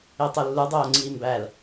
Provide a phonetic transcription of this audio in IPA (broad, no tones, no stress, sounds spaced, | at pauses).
e tˤ o lː u dˤ oː ŋ͡ǀ iː m b æ l